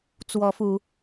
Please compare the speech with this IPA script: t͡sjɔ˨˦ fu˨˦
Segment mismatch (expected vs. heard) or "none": j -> w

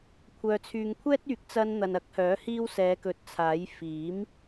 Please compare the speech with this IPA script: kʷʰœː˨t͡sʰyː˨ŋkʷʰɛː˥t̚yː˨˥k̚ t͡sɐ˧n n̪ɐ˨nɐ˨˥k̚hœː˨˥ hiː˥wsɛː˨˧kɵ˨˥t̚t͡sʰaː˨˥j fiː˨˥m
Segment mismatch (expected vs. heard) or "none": none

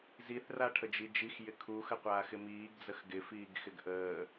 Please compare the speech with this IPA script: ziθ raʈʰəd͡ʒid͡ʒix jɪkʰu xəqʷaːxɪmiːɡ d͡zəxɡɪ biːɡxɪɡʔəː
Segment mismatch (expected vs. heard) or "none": b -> f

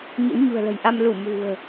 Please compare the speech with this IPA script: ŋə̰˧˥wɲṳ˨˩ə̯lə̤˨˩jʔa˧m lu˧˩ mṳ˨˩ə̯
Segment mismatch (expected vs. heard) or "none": ŋ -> ɲ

